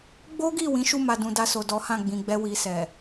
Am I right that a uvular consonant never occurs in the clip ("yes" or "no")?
yes